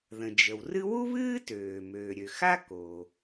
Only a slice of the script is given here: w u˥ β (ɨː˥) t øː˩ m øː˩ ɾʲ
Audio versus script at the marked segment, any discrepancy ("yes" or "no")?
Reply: no